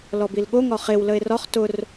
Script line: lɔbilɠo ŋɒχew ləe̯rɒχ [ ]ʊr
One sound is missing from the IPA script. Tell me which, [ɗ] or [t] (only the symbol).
t